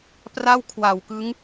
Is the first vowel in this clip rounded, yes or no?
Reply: no